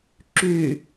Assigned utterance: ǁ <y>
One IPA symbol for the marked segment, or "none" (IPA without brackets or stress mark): y